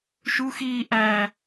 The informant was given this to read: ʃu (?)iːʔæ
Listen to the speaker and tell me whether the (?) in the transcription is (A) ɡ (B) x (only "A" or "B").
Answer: B